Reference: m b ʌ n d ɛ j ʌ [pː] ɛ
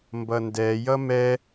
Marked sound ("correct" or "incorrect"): incorrect